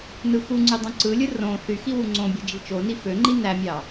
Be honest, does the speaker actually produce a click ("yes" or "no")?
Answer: yes